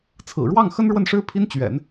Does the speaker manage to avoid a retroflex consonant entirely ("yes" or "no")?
no